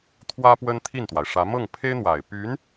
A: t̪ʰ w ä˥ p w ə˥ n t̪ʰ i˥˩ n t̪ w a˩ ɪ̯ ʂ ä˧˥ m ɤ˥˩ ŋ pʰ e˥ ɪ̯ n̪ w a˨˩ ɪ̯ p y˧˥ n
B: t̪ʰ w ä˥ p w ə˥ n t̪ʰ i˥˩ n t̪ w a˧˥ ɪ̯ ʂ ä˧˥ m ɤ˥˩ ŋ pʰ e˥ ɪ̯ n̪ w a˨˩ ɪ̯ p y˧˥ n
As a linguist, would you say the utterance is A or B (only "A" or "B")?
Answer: A